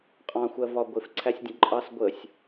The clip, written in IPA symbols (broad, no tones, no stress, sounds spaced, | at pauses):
qʼ ɑ̃ xʷ ɜ v ɒ ɡʷ ɪ f ǀʰ æ sʲ dʲ ə̃ ǃʼ ɑ s ɡʷ ə sʲ